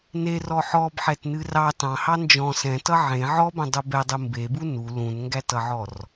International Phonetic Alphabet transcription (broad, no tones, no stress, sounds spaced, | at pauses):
n e r ɔ ħ ɔ b ħ ɛ t n ɨ r ɑ t ɑ̃ h ɑ n d͡ʒ ɔ̃ s ɛ̃ t ʌ ʕ ẽ ʕ ɔ b ẽ dˤ u b ɛ dˤ ɨ m b e b u n u l ũ n ŋ ɡ æ t ʌ ʕ ɔ r